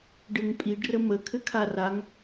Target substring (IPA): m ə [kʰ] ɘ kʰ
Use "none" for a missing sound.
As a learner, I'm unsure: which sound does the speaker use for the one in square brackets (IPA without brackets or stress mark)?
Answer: kʰ